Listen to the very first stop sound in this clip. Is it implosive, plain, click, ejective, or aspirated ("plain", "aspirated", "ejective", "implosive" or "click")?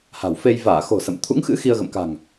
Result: aspirated